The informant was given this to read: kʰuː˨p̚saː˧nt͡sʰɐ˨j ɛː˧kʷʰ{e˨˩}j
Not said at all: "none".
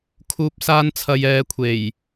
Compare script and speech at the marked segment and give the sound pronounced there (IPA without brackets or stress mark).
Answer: e˨˩